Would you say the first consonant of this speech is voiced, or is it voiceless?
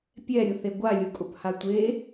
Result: voiceless